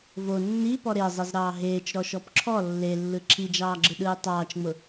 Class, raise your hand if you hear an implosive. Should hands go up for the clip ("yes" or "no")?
yes